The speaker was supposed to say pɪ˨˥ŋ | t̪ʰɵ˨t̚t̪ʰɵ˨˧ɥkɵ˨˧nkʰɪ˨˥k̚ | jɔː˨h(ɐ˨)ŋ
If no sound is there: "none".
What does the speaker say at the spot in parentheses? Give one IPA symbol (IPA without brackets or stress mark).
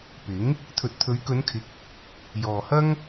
ɐ˥